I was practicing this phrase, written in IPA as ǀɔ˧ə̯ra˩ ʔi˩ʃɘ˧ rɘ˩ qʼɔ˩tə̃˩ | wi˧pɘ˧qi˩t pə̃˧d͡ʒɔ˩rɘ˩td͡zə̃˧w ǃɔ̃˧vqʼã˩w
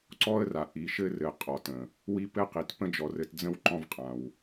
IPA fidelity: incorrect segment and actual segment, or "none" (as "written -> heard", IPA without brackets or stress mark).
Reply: none